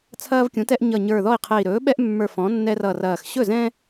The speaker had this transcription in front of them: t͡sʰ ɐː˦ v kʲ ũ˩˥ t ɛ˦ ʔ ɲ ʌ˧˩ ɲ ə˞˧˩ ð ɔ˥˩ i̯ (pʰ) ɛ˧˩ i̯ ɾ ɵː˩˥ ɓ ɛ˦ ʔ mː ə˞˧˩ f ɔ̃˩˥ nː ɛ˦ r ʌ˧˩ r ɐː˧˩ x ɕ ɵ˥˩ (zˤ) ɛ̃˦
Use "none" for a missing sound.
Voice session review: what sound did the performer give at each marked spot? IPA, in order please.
qʰ, z

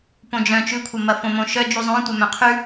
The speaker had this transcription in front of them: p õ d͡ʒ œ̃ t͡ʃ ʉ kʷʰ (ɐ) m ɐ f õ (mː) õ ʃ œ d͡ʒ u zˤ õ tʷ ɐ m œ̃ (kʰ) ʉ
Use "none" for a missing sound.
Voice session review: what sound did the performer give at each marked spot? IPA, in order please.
ɐ, m, qʰ

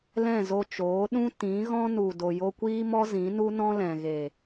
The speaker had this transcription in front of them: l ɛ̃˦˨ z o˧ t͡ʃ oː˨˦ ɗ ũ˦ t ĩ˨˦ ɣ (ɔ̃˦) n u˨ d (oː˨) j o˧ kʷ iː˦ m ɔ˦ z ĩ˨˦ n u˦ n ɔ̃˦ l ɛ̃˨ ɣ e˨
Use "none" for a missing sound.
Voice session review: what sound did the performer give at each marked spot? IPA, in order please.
ɔ̃˦, o˨

